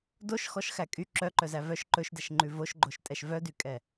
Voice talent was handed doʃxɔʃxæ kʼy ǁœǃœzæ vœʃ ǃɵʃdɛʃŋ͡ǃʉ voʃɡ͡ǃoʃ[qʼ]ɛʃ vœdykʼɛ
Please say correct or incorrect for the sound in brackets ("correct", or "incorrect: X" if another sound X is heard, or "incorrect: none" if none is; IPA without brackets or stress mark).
incorrect: tʼ